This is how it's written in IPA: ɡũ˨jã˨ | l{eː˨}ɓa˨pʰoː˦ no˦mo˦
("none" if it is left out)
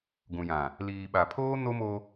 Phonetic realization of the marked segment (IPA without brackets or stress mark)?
iː˨